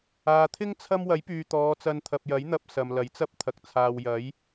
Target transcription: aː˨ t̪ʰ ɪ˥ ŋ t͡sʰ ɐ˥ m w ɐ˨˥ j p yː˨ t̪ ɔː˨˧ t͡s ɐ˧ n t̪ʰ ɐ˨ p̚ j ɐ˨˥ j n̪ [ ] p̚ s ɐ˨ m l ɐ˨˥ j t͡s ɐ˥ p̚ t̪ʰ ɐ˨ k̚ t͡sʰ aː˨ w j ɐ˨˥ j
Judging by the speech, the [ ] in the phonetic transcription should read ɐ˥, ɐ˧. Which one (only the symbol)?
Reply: ɐ˧